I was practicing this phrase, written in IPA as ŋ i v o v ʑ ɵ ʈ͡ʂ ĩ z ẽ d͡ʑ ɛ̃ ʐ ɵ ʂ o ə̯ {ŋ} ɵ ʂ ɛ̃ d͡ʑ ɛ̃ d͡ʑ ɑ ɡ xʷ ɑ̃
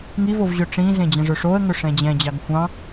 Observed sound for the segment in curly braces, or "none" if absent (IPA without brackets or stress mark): ŋ